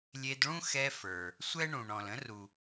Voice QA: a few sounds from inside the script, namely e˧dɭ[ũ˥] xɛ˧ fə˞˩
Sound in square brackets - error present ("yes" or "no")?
no